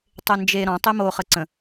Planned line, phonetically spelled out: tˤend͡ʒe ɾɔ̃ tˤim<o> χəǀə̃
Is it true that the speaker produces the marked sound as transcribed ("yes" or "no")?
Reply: yes